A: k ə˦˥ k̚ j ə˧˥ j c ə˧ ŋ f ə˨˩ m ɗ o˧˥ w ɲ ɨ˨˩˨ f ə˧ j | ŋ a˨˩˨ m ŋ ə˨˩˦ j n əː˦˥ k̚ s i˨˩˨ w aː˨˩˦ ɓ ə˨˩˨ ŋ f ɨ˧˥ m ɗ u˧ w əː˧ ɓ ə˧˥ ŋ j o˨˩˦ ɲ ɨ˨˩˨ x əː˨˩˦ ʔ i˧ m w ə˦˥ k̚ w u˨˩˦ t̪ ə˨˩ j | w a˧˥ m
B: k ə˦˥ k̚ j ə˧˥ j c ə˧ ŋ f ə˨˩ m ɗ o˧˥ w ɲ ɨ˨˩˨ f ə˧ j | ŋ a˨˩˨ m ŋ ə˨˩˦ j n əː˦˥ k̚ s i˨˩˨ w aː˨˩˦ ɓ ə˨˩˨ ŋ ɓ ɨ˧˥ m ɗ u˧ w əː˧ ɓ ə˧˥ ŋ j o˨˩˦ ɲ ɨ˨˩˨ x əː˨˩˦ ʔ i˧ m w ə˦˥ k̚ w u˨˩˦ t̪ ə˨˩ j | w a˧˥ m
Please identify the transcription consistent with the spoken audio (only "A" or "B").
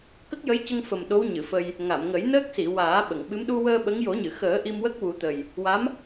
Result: B